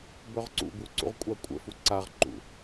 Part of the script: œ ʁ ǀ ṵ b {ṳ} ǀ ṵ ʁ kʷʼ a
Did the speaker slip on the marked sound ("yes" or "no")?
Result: yes